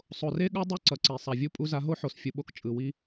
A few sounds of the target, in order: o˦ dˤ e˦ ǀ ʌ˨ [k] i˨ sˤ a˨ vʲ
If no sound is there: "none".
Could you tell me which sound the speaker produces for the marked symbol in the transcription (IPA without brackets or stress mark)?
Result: ǀ